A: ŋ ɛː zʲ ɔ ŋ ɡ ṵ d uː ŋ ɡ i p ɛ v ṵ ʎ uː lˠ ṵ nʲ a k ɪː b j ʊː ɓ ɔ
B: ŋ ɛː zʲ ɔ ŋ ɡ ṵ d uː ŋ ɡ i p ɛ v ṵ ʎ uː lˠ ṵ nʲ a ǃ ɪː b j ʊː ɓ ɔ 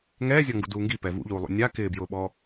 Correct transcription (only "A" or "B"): A